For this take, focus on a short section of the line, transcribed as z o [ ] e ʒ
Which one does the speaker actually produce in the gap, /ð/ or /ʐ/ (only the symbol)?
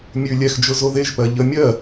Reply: ð